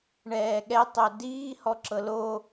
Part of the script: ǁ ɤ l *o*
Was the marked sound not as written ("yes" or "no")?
no